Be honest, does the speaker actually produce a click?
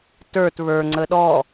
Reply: yes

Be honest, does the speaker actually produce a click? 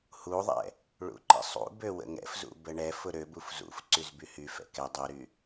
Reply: yes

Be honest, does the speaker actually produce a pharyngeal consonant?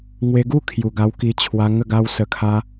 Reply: no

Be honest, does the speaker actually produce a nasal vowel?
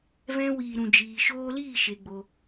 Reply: yes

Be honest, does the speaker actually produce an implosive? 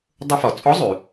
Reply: no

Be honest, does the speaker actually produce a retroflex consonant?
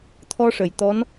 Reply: yes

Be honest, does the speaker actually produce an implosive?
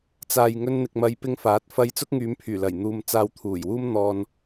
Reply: no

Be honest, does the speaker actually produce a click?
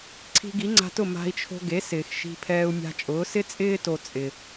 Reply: yes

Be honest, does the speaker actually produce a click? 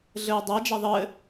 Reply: no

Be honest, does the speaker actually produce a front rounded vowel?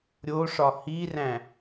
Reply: no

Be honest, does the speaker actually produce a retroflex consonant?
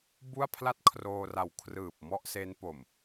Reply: no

